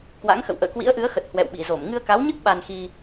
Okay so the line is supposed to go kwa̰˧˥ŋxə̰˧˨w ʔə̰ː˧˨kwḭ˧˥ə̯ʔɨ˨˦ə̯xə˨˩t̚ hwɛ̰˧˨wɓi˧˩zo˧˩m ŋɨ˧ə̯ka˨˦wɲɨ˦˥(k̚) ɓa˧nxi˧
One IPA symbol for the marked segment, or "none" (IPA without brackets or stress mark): k̚